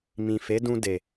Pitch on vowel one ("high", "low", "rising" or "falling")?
low